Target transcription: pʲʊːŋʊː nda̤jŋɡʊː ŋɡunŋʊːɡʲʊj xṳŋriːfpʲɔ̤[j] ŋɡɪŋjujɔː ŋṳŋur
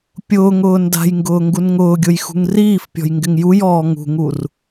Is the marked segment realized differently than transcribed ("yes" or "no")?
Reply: no